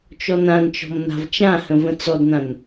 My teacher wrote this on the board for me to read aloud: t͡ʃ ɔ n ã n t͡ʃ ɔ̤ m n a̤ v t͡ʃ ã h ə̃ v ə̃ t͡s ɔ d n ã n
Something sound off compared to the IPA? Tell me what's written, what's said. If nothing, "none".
none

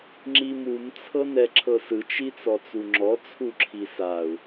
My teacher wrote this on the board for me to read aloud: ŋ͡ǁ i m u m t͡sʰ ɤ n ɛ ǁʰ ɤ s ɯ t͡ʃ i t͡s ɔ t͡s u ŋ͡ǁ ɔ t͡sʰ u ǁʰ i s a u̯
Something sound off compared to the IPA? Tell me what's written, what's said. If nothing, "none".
none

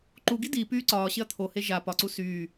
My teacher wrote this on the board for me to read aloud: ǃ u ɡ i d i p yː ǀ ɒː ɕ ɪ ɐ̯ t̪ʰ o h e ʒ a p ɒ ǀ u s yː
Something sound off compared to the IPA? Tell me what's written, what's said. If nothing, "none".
none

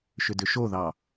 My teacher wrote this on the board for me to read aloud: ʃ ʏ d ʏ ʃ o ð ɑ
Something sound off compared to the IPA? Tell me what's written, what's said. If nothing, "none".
none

